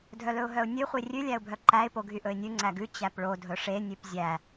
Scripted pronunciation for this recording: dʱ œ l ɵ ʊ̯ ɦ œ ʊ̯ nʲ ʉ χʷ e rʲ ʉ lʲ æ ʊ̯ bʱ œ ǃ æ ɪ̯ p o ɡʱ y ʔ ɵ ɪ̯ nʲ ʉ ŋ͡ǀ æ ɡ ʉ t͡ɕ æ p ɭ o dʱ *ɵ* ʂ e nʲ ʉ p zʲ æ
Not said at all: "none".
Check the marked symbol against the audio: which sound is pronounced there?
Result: ɵ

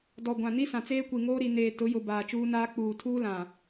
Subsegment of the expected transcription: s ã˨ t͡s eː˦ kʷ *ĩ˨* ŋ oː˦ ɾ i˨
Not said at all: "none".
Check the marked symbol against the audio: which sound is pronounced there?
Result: i˨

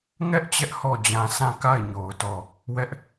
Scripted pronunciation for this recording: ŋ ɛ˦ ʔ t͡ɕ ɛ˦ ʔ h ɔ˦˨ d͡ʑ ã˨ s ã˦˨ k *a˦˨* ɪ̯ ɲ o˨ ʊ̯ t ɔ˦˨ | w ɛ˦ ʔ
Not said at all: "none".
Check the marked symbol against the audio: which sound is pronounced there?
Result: a˦˨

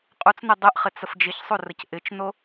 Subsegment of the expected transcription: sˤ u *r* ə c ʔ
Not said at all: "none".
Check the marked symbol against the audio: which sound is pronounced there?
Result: r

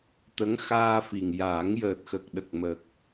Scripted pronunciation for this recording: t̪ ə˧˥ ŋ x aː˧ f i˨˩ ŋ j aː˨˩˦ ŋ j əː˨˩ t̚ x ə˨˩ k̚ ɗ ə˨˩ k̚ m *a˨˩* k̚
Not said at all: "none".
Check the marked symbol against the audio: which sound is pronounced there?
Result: ə˨˩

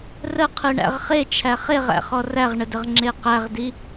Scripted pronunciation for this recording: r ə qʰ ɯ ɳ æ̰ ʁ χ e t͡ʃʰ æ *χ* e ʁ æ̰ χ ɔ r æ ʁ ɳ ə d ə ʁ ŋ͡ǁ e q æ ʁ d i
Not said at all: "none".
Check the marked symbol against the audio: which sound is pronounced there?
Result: χ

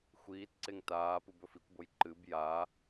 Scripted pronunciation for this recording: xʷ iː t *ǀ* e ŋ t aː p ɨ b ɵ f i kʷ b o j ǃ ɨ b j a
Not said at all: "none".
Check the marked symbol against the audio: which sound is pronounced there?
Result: ǀ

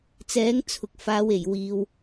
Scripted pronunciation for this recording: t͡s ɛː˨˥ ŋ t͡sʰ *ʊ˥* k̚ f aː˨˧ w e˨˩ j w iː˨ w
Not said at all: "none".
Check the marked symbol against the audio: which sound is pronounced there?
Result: ʊ˨˥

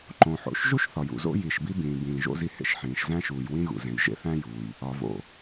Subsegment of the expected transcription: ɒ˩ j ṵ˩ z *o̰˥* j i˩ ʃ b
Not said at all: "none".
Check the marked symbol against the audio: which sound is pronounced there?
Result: o̰˥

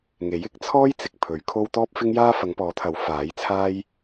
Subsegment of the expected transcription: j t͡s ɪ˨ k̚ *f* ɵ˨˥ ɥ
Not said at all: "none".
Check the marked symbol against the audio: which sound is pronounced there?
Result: pʰ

